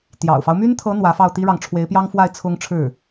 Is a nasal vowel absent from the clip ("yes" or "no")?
yes